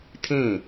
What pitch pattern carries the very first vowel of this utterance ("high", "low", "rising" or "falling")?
falling